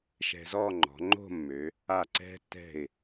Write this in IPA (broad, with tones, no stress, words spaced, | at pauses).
ʃɛ̤˧zɔ˥˧ŋ͡ǃɔ̤˩˧ŋ͡ǃo̤˥˧ mːø˩˧ | a˧˩ǀɛ̤˧tːɛ̤˧˩ɪ̯